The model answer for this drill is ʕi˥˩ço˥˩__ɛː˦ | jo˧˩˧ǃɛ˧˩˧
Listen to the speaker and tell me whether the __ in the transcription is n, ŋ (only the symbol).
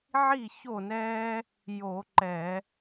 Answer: n